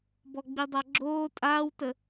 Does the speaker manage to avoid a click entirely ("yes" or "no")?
no